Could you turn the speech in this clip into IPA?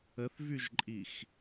ə θ v y ʒ ǃʼ i x

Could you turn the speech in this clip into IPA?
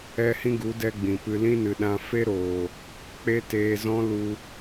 ɛ˦ h ĩ˦ ɡ u˨˦ d ɛ˦ ɡ͡b ĩ˨ p ɨ˧ l ĩ˦ n ɨ˨ ɗ ã˧ f e˦ ɾ oː˨ | k͡p e˦ t eː˧ z ɔ̃˦ l u˧

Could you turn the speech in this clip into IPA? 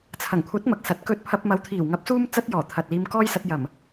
t͡sʰ ɐ˨˩ ŋ kʷʰ ɐ˨˥ t̚ m ɐ˨ k̚ s ɐ˨˥ t̚ k ɵ˧ t̚ pʰ ɐ˧ p̚ m ɐ˨˧ w t̪ʰ iː˨˩ w ŋ ɐ˨˥ p̚ s uː˧ m t͡s ɐ˥ t̚ j ɔː˨˩ t̪ʰ ɐ˨ t̚ l iː˧ m k ɔː˥ j s ɐ˧ t̚ j ɐ˨˩ m

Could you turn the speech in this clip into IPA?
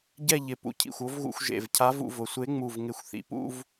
ɟ ɛ˥˧ ʎ ɪ˧˩ p ṵ˧ cʰ ḭ˧˩ xʷ o˧˥ v ɣ ṵ˧ xʷ ʒ ḛ˧˩ v cʰ a˧˥ v ṵ˧ v ʊ˩ sʷ e˧˥ ŋ͡m u˧˩ v ŋ ɪ˧˩ xʷ θ ḭ˩ p ṵ˥˧ v

